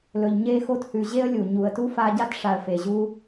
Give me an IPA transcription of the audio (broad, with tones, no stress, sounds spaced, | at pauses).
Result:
l ɵ˨ ʎ ɲ e˦ x o˦ t h ʉ˨ ʑ e˦ ə̯ lʲ u˩ ɲ u˨ ə̯ t u˥ f a˦ ɟ a˥ t ʂ a˨ ə̯ f e˩ ʑ u˦